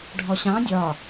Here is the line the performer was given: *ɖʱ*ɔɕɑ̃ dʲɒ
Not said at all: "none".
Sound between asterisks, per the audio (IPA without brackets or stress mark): ɖʱ